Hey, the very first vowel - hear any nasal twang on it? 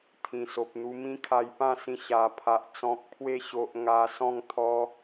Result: yes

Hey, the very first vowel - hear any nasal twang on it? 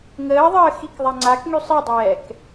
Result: no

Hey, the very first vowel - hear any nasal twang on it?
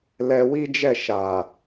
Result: no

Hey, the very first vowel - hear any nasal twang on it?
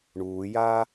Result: no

